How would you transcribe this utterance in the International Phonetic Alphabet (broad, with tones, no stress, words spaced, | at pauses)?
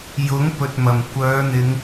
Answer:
jʊ˨˥ŋ pɵ˨t̚mɐ˨˩m kʷœː˨˧n̪ɪ˨˧ŋ